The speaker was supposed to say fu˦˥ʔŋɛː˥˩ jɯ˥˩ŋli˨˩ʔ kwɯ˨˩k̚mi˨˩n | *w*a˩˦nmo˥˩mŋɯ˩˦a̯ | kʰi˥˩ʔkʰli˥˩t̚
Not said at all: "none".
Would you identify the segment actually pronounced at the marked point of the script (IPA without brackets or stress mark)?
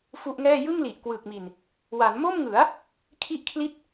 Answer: w